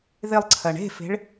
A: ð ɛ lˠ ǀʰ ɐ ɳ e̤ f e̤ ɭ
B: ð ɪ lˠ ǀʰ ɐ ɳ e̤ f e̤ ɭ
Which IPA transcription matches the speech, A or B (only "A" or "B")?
B